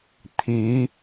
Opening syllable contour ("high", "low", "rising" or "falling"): rising